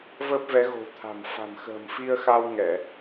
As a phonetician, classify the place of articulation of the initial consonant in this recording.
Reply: labial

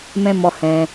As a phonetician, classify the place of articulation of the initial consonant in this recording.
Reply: labial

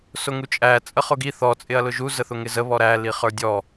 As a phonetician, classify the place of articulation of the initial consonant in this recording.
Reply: alveolar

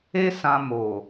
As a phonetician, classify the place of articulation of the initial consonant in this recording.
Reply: alveolar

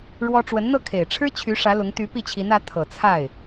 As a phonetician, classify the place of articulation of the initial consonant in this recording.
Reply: retroflex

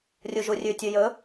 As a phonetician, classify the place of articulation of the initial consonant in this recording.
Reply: alveolar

